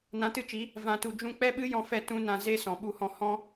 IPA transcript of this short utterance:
nã˨˦tɨ˧t͡ʃi˨˦ | vã˨tu˨ d͡ʒũ˧ k͡pɛ˦ɓɨ˦ jɔ̃˧fɛ˧ tũ˦nã˧ ze˦sɔ̃˨ ɓu˧hɔ̃˧ hɔ̃˦

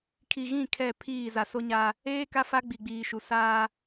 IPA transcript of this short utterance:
kʰi˨ɣĩ˦˨ kʰɛ˦˨pʰiː˦˨ za˨so˦ɲa˦ | eː˦ ka˦fa˦ ɡ͡bi˨ɡ͡biː˨ʃu˨ saː˦

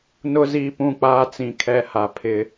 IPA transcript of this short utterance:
nʊ˦ ziː˦pũ˦˨ k͡paː˦ t͡sĩ˨ kʰɛ˦ha˦ pʰɪ˦

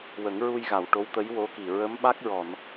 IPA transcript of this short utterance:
wə˨˩˦ŋɹu˧jɣa˨˩˨w ʈo˧˥wt̪ə˧˥jwo˧˥ki˨˩ ɹə˧˥mɓa˦˥k̚ɹɔ˨˩˨n

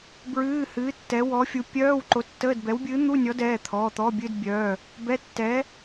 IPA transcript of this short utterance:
bɹɨː˧˥˧hɨː˨˥ tːɛ˨˥wɔ˨˥fʲu˨˥ pʲœː˧˥˧w ǃo˨˥tːəː˧˥˧dbɛ˨˥wbʲɨː˨˥ n̪u˧˥˧nʲɔ˨˥dɛː˩˧˩t̪ʰɔː˩˧˩ t̪ɔ˧˥˧bʲɨ˧˥˧dbʲœː˩˧˩ | bɛ˧˥˧tːɛː˨˥

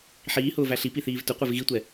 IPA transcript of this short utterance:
ħiːhʊːvæ ɬipiθiːv tʊqʷev ɣitʷɛ

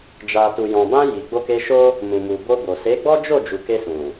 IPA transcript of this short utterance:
d͡ʒa˨tu˨jɔ̃˨bã˧ ji˨ɡ͡bo˧ke˧ʃo˦ | mũ˨mu˨bo˧bo˨ se˨˦ɡ͡bɔ˦d͡ʒo˦˨ d͡ʒu˨ke˧sũ˨

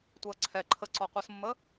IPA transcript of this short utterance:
tʷɛɐ̯ǀʰɛ ǃʰəǀɔqʷɤsmːə

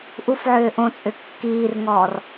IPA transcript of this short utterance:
ʔufʕʏː ʔõt͡sʼʏ kːiːrŋɔːr

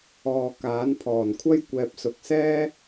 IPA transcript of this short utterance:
ɔː˨ kaː˨˥npʰɔː˨˩nkʷʰɐ˥j kʷɛː˨p̚sʊ˨k̚sɛː˥

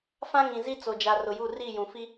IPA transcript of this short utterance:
fã˦ŋĩ˨zi˦ t͡so˨d͡ʒa˨ rʊ˨ju˦˨ ri˦˨jũ˨fi˦

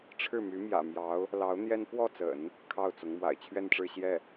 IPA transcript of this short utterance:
ʈ͡ʂʰɻ̩˥˩my˧˥ mjä̰˨˩mjɑ˧˥ʊ̯ | lɑ˧˥ʊ̯n̪jɛ˥n pwɔ˥˩t͡sə̰˨˩˦n | kʰɑ˥˩ʊ̯t͡sʊ˧˥ŋ mwa̰˨˩ɪ̯t͡ɕʰɥɛ˥˧nʈ͡ʂɻ̩˥˧ ɕjɛ˥˩

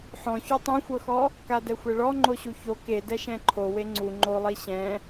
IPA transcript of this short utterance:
ħɔ̃ço tˤɛ̃xʷɤxɔ | kadɛxʷɛɭɔ ŋ͡ǃoɕuço ke dɛʃɛ̃ǃʰo weŋ͡ǀu ŋ͡ǃolˠi ɕɛ̃

